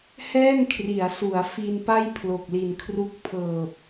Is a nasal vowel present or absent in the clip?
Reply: absent